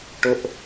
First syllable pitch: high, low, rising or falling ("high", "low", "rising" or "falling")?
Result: high